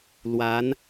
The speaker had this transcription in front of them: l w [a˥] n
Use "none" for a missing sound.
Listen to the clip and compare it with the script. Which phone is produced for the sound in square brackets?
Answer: a˧˥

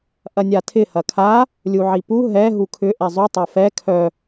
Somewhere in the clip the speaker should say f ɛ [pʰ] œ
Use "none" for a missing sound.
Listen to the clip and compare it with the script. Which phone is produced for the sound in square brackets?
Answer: kʰ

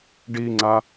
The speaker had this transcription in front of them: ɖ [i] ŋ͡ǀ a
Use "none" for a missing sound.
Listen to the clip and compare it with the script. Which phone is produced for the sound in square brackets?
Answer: i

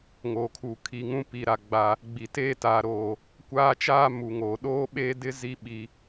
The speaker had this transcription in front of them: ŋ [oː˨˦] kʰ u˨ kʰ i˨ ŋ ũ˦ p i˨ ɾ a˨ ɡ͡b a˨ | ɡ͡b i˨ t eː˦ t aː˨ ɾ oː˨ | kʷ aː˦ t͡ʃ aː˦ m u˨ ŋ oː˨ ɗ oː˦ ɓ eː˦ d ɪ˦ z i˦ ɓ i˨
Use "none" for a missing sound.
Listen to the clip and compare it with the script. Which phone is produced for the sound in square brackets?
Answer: oː˨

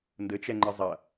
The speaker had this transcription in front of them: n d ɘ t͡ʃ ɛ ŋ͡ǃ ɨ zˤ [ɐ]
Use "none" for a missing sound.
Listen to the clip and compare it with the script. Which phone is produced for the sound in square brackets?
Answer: ɐ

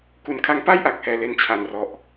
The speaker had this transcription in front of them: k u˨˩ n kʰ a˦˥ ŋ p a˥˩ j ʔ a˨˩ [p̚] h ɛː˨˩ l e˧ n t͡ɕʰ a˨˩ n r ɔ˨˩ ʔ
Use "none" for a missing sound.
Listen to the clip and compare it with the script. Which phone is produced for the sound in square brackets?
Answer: k̚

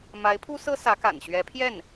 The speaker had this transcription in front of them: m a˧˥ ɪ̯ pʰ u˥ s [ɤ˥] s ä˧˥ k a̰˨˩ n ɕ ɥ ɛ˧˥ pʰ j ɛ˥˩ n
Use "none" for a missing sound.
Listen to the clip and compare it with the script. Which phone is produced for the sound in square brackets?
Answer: ɤ˥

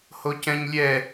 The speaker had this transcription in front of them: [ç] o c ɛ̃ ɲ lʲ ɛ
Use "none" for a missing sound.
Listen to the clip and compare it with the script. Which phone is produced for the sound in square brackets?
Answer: h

